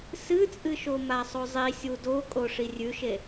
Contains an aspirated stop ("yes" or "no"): no